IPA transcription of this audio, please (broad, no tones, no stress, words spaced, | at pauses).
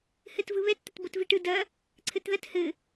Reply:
hɘtvɯβɛt t̪ɐtbotviʈɯ dɐ | ǀʰɘtðɐt hɘ